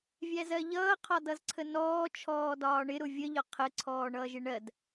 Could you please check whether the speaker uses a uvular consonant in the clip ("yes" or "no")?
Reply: yes